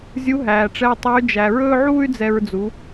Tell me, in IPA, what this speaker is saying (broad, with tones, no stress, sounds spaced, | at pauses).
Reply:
zʲ u˧˥ ɦ æː˩ ʈ͡ʂ ɛ˧ y̯ tˤ œ˧˥ y̯ d͡ʒ æ˩ ɹ ɵː˥ ʕ uː˥ y̯ d͡z ɛ˧ ɹ d͡z u˩˧